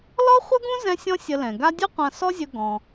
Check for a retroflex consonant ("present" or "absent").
absent